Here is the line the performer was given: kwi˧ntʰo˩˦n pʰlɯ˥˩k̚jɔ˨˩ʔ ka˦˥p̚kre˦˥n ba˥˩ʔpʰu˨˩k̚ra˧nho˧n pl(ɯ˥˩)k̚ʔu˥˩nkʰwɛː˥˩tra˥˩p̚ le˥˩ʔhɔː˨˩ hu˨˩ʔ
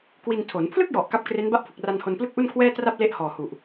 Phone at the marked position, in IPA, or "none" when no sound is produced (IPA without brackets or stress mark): ɯ˥˩